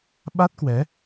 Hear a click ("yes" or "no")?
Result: no